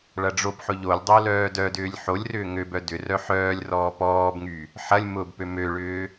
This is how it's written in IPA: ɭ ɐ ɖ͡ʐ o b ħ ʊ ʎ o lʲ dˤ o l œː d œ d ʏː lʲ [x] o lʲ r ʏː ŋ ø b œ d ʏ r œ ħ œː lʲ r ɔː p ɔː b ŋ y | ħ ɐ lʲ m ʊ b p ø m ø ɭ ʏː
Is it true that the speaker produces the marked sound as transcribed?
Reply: no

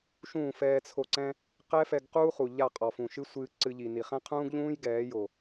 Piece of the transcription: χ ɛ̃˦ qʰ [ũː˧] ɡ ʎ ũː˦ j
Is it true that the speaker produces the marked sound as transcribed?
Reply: no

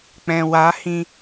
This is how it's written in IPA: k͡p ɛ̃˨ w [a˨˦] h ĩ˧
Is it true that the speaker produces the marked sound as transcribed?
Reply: yes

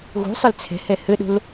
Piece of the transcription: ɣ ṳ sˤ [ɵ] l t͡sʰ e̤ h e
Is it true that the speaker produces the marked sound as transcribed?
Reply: yes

